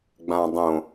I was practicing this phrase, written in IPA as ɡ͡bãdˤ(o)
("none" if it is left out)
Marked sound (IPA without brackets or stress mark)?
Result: õ